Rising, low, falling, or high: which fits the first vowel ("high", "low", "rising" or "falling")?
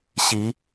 rising